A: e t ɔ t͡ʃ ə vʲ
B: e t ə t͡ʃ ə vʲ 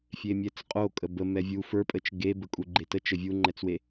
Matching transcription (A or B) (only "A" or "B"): B